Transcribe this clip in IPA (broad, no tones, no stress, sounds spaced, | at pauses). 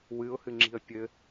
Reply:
w ɨ ʊ̯ h ɨ ŋ͡ǁ i̤ ə̯ pʲ ɘ